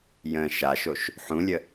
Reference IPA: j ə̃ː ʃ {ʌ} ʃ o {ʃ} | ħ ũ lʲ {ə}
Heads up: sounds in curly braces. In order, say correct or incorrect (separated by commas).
incorrect, correct, correct